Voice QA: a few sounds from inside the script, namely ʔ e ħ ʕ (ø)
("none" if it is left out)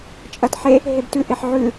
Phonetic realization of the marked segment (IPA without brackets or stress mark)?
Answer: ʉ